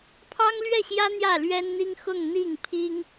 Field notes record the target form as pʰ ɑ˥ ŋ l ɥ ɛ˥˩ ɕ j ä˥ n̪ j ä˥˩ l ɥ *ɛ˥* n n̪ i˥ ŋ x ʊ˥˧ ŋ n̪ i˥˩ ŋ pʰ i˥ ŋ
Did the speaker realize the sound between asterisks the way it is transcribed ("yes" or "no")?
yes